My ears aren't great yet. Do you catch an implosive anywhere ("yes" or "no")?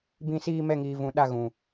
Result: yes